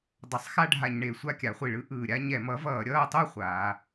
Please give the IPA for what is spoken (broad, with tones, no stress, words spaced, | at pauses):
dˤʌ˩˥sˤxa˥˧ɖʱa˧˩˧ɲɳe˨˩ sʷa˥˧kʲa˩˧χʷi˧˩˧ɭɯ˩˥ ʔɯː˨˩ɾʲa˥˧ ɲɛ˧˩˧mʌ˩˥vʌː˧˩˧ ɾʲʌː˥˧tˤo˥˧ χʷaː˩˧